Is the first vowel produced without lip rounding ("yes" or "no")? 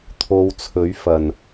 no